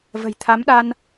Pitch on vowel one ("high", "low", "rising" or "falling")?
low